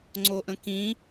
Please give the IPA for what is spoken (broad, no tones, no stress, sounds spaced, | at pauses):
ŋ͡ǀ o ʔ ə̃ k ĩ